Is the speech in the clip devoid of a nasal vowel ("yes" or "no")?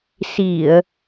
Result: yes